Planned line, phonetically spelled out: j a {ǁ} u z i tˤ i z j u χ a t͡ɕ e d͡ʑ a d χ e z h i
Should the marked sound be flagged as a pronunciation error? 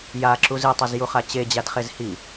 no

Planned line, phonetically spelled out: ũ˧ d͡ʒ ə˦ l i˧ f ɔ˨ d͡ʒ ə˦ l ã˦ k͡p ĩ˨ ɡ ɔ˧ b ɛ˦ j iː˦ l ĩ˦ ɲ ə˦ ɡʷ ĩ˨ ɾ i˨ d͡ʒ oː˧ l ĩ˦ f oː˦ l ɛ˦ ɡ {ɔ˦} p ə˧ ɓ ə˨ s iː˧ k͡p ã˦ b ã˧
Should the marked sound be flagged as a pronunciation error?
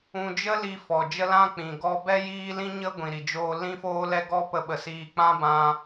no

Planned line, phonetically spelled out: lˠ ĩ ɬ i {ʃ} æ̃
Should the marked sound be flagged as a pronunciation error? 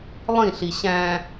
yes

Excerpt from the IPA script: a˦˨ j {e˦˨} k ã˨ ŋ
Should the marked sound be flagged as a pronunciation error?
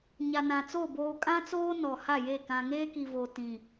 no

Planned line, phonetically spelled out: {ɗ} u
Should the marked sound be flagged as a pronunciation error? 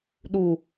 no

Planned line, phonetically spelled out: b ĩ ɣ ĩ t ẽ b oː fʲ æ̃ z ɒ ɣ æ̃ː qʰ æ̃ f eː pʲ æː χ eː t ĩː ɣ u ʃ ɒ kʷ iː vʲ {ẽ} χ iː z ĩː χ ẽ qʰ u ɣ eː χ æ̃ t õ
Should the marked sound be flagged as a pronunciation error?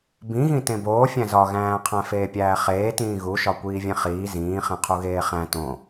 no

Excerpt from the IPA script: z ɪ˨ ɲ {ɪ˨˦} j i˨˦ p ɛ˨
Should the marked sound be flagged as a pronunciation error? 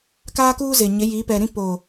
no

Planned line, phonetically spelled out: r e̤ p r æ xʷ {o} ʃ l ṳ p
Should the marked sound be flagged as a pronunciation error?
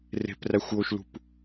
no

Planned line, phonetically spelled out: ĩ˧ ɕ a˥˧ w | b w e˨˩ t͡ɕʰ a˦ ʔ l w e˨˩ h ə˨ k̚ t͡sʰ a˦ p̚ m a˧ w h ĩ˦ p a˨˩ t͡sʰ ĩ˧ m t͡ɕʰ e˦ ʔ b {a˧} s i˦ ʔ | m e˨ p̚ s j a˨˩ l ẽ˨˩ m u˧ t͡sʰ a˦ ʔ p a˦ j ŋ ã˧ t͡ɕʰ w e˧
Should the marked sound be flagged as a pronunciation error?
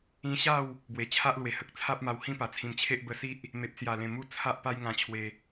yes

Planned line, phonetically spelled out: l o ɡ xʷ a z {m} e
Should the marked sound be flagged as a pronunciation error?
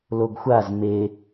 no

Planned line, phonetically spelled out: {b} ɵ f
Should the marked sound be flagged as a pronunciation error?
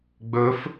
yes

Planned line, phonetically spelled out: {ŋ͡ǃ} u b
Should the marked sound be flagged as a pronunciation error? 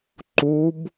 yes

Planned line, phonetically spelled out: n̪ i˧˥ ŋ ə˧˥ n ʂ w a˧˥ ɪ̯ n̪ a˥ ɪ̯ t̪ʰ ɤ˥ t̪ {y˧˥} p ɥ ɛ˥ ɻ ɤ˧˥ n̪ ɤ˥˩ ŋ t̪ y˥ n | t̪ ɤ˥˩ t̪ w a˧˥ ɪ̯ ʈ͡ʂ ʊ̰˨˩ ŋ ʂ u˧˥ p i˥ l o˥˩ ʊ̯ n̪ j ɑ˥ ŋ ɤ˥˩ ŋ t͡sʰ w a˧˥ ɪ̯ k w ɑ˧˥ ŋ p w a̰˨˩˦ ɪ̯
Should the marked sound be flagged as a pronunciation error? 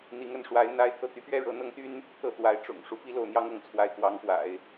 no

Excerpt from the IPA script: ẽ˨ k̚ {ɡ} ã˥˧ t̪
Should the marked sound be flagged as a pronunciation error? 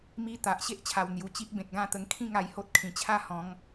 no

